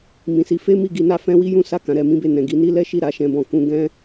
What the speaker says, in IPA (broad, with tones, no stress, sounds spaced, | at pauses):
m ĩ˨ s i˨˦ f e˦ m i˦˨ ɡ i˧ n a˧ f ɛ̃˧ w i˦ j ũ˦ s a˦˨ k ã˨˦ ɾ ɛ˧ m ĩ˦ b e˦˨ n ɛ̃˨ ɡ i˨˦ n i˦ l ɛ˦ ʃ i˦˨ ɾ a˨˦ ʃ ɛ̃˧ b ɔ̃˧ k ũ˧ ɡ ɛ̃˦